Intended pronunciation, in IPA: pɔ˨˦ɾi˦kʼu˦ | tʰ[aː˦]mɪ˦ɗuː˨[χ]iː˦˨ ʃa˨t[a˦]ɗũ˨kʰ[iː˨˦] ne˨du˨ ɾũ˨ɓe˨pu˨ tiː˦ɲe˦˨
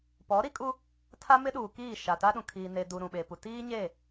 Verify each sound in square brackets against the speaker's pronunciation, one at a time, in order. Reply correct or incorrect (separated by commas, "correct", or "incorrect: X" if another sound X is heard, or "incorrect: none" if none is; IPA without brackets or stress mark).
incorrect: a˦, incorrect: k, correct, incorrect: iː˨